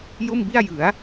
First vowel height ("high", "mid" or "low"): mid